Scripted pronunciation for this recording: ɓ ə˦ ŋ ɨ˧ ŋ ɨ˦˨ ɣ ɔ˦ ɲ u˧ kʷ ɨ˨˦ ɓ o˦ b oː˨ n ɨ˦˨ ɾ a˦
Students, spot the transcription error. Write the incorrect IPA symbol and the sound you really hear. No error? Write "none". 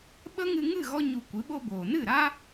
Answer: none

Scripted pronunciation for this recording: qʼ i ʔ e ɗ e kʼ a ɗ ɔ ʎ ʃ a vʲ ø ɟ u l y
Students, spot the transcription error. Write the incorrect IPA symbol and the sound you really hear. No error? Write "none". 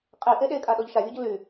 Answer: none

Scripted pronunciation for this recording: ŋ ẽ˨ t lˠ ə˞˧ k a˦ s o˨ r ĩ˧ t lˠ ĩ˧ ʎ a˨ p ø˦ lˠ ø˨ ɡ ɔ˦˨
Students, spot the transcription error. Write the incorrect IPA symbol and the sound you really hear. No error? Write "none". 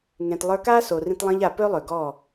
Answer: none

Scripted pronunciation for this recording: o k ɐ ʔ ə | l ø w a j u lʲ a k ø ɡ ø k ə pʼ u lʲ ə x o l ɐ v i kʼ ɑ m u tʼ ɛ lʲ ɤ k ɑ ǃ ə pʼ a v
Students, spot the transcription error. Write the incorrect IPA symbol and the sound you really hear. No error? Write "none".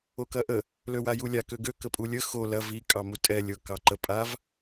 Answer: none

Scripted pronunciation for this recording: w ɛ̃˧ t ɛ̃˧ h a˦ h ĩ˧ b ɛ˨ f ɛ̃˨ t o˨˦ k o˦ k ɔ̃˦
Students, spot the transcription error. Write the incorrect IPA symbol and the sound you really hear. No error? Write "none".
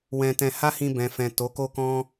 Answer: ɛ˨ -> ɛ̃˨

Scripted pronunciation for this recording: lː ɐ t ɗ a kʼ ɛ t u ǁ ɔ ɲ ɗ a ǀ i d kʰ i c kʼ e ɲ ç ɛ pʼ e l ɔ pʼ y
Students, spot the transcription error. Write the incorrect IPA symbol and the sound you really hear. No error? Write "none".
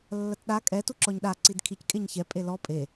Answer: y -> e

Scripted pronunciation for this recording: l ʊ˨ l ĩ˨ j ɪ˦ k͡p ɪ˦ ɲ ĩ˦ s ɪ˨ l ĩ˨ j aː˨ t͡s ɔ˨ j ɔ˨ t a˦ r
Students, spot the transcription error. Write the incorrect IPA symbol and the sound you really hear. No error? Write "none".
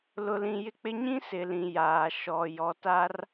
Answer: t͡s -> ʃ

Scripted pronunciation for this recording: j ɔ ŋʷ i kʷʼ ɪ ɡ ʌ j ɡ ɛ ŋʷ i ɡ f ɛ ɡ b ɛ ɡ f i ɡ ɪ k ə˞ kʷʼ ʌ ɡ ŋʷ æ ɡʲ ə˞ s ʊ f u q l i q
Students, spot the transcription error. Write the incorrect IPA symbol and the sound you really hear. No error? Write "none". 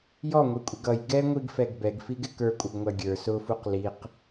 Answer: none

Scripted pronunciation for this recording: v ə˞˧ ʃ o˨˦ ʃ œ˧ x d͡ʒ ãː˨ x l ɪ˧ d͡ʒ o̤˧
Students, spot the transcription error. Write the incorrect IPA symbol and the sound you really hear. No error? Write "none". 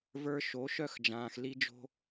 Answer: ɪ˧ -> i˧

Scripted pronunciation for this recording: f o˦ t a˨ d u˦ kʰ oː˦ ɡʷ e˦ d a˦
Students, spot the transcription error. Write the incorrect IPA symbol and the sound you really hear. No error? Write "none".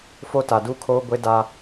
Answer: none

